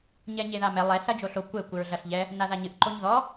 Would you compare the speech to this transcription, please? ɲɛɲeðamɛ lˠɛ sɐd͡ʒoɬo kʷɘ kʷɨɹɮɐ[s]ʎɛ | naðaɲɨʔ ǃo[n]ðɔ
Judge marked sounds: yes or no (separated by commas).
no, no